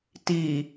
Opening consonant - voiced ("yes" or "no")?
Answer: no